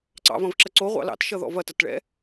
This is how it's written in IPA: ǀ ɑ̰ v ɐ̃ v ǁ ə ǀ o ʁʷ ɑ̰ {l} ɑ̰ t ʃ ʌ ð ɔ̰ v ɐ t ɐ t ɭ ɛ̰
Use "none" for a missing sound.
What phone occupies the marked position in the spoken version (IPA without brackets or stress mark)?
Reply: l